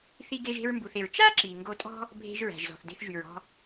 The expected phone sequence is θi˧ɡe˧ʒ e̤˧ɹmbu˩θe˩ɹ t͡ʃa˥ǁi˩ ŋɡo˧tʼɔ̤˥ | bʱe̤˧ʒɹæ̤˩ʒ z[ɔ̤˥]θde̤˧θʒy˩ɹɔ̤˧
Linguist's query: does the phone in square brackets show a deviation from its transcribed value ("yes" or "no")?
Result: yes